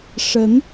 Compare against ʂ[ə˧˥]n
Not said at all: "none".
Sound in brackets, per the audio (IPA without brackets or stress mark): ə˧˥